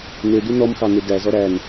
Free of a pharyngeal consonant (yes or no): yes